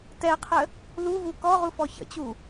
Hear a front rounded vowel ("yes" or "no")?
no